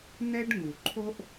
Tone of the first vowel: high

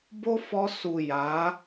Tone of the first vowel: high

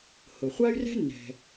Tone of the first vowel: low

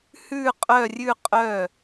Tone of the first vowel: falling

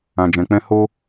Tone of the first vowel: low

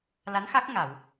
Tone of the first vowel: rising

